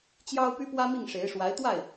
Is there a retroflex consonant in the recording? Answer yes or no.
yes